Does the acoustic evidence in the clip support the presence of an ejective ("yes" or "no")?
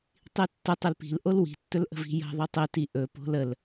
no